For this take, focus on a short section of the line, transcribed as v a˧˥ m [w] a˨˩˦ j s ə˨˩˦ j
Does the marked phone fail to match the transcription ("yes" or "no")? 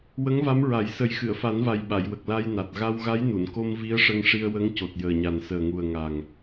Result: yes